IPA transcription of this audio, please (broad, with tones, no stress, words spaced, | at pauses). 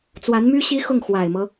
t͡swa˧˥nmy˥ ɕi˥xʊ˥˩ŋ xwa˨˩ɪ̯mɤ˦